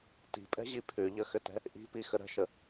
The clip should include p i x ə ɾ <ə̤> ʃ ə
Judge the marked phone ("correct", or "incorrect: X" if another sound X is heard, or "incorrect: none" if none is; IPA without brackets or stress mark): correct